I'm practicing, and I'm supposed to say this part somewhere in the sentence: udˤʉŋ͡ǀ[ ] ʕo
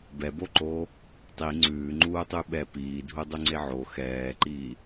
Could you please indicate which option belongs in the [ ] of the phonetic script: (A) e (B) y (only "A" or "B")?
A